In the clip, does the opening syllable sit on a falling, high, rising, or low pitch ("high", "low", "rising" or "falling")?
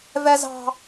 high